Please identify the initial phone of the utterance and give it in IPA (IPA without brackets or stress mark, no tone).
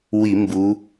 w